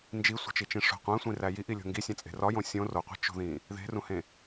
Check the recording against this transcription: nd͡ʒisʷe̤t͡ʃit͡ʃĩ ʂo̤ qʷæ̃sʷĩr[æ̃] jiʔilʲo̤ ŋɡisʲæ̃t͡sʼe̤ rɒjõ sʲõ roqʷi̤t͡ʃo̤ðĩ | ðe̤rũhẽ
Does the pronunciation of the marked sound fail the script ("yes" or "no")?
yes